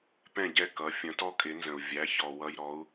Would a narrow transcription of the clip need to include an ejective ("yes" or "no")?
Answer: yes